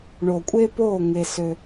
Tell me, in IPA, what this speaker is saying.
ɳ o˨ kʷʼ e˦ p o˦˨ ŋ e˦ s ø˦

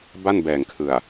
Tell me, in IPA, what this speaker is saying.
b a˥˩ n b ɛː˨˩ ŋ kʰ ɯ˨˩ a̯

